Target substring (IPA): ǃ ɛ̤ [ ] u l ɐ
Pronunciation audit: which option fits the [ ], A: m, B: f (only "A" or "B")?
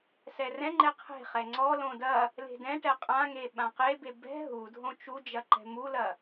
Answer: A